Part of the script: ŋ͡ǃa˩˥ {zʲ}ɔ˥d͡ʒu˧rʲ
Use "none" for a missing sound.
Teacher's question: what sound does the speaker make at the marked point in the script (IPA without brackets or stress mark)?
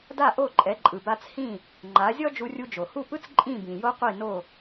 zʲ